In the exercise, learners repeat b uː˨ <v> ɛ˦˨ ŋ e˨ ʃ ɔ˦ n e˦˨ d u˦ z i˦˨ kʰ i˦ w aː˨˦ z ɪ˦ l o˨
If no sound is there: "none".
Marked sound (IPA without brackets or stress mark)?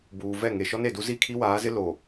v